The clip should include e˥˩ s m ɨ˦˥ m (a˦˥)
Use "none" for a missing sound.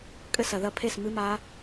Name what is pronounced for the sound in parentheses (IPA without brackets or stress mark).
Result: a˦˥